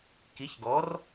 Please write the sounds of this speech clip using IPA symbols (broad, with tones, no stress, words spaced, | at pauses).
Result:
ki˨˥çɡɔ˨˥r